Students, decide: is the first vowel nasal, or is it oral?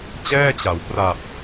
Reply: oral